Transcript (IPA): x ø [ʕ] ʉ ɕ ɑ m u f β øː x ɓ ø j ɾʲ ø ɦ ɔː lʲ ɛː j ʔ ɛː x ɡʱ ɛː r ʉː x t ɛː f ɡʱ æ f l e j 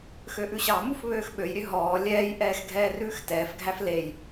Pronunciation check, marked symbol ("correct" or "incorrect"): incorrect